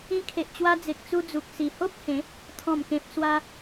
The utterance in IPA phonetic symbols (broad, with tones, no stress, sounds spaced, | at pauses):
ĩ˧ kʰ e˨ ʔ t͡ɕ w a˧ d͡z e˨ k̚ t͡s u˧ d͡z u˨ k̚ s i˨˩ h o˦ p̚ h ẽ˨˦ | t̪ʰ ɔ̃˨˩ m k ẽ˨ p̚ s w a˧